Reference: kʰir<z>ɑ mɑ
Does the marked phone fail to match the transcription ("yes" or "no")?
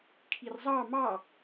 yes